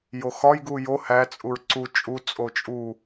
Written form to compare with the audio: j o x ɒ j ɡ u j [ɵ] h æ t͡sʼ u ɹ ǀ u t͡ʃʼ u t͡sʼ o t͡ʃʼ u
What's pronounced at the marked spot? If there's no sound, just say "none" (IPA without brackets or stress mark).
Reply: o